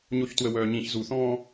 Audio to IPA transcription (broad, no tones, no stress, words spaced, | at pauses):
ɲoçtwəwœːɲĩç zuθɔ̃ː